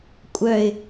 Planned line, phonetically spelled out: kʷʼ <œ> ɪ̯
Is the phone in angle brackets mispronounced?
no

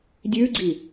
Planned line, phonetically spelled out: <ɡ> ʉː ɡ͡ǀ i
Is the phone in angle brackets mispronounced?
yes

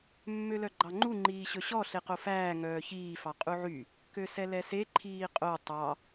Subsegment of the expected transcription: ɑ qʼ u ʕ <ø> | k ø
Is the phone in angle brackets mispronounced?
yes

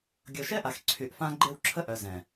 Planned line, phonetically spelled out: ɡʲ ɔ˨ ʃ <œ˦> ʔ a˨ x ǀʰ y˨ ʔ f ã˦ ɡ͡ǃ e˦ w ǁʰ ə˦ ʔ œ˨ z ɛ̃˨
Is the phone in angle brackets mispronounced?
yes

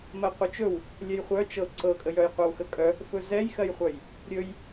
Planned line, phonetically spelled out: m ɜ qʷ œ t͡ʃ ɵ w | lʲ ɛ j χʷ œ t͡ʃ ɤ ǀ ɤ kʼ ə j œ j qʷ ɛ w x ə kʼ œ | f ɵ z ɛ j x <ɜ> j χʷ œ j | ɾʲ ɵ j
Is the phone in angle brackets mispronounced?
no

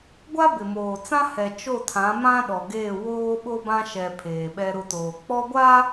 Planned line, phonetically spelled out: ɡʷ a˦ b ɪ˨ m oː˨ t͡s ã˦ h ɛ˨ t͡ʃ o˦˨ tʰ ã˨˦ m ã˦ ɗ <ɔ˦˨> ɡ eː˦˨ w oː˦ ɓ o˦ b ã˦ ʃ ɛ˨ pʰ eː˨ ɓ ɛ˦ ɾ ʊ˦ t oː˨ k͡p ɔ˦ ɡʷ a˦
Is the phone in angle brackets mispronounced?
yes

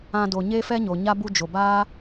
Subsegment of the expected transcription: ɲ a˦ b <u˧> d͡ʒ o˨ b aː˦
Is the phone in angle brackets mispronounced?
no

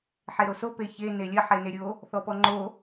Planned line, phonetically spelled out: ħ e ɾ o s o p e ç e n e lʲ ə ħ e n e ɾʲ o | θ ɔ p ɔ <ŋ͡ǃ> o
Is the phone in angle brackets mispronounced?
no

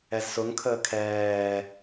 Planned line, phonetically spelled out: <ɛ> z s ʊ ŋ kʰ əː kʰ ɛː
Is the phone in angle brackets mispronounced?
no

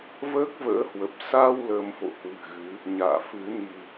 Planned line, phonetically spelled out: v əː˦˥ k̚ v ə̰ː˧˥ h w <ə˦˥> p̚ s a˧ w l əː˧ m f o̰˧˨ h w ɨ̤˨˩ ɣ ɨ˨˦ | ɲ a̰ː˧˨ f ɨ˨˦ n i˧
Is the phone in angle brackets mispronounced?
yes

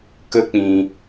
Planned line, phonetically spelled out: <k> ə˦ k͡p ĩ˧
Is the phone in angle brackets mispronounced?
no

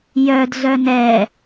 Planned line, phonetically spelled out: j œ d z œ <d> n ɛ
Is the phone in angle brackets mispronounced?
yes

